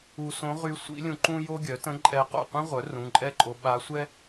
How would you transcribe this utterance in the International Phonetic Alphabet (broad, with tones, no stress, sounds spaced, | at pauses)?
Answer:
u˧ s õ˧˥ ʁ y˧˥ sʷ ḭ˧˥ lʲ ũ˧ ǃ ũ˥ j o˥ ɡʲ œ˩˥ t ə̃˧˥ ǃʼ ɛ˧ q o̰˥˩ qʷ ĩ˥ ʁʷ œ˩˥ r ũ˩˧˩ ǃʼ ɛ˥˩ ǃʼ o˧ ɓ a˧˥ sʷ ɛ˥